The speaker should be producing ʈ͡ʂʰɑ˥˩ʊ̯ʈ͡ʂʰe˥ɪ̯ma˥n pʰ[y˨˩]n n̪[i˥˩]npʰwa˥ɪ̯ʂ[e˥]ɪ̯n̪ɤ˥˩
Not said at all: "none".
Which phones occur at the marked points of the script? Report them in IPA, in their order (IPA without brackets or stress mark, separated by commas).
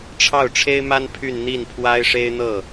y˥˧, i˥˩, e˥